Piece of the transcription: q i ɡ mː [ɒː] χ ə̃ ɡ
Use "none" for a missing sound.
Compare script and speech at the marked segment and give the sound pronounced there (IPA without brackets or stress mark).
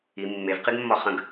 ɒ